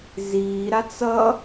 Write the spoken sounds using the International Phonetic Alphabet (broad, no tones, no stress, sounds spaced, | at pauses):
z iː ɾ a t͡s ʌ